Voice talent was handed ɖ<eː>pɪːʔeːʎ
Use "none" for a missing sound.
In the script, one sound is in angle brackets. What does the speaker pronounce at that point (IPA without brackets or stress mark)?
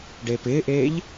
eː